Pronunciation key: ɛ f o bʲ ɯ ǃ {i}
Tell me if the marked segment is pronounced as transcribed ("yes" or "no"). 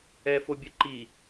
yes